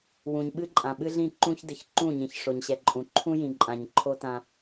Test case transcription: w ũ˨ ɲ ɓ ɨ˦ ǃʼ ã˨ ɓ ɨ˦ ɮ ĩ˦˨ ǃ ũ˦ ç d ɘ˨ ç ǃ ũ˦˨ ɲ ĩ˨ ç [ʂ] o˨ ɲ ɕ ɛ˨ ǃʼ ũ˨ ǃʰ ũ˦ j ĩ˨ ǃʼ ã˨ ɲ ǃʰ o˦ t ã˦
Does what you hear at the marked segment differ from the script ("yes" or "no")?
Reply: no